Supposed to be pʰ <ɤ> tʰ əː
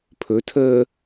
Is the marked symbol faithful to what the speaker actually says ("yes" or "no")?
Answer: no